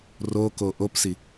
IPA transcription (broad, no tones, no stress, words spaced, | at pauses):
roko ʔopsi